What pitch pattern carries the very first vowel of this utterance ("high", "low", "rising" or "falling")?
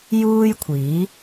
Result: high